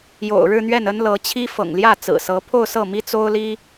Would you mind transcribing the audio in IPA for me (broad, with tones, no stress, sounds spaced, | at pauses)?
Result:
j o̰˨˩ ʊ̯ ɻ ɻ̩˥˧ n̪ ɥ ɛ˥˩ n ə˥ n l ɤ˧˥ t͡ɕʰ i˥ f ɤ̰˨˩ ŋ l j ä˥˩ t͡s ɹ̩˨˩ s ɤ˧˥ pʰ o˥˧ ʊ̯ s ɤ˥˩ m i˥ t͡s o˥ ʊ̯ l i˥